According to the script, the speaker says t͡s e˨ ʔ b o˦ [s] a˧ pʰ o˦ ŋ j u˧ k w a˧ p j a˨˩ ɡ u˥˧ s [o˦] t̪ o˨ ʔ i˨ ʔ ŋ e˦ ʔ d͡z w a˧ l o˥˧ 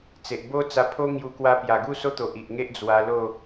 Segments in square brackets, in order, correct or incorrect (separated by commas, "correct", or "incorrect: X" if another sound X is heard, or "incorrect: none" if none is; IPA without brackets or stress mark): incorrect: t͡s, correct